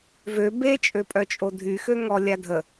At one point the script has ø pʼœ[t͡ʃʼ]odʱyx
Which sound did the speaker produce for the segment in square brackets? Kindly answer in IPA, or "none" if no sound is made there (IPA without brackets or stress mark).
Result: t͡ʃʼ